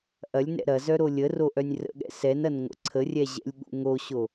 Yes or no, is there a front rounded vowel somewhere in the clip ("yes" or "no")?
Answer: yes